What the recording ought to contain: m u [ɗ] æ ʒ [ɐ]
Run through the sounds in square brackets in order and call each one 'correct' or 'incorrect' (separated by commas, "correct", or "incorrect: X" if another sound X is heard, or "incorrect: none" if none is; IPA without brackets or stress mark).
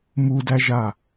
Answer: incorrect: d, incorrect: a